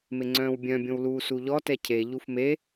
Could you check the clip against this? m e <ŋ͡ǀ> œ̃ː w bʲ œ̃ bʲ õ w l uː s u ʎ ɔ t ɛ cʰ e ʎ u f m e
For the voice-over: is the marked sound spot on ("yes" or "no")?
yes